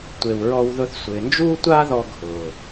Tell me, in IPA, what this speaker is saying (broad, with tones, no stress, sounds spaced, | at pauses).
tʷ e˨ w ɹ ɔ˧ w ð ʊ˧ θ sʷ ɪː˨ n d͡ʒ uː˦ tʷ aː˦ ð ɔ˧ ɡʱ ʊː˨